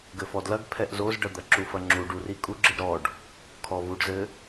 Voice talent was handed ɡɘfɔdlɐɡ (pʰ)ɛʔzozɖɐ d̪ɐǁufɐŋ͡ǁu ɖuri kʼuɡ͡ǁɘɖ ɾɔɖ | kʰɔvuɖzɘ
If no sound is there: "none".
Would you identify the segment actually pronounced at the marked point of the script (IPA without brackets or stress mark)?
pʰ